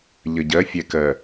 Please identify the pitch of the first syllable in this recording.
low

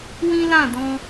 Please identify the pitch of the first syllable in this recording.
high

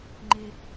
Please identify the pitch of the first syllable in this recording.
high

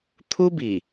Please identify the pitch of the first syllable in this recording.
high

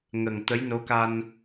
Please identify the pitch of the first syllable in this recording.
low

